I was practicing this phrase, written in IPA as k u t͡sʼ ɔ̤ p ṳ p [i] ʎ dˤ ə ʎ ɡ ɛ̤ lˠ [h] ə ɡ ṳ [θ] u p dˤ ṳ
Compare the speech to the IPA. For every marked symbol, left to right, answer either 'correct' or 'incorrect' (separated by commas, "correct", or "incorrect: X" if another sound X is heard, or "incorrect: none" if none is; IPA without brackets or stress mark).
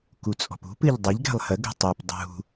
incorrect: ɨ, correct, incorrect: tˤ